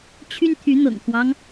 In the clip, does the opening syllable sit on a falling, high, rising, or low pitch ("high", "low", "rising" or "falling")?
high